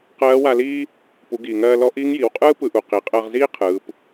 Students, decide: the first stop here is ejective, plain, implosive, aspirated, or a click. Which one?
plain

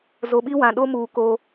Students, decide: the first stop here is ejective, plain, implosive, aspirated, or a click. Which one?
implosive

